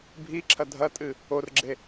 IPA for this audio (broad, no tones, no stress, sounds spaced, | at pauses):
bʱ i ǁʰ ɐ dʱ ɐ tʼ ɨ | o r ɡ͡ǁ e